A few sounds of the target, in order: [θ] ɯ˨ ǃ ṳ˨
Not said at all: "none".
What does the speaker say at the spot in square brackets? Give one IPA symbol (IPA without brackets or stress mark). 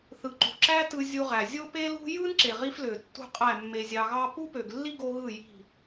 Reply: θ